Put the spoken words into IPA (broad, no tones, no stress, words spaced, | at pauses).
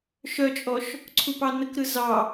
ʃœt͡ʃʼɔʃ | ǀʰupɑnəkɾɯ zɑ